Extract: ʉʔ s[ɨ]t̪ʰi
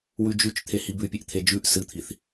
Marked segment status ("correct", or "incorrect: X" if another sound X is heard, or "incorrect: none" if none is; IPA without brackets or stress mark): correct